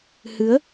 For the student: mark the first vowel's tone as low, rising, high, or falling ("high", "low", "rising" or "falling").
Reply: rising